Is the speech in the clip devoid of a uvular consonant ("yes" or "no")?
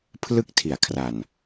yes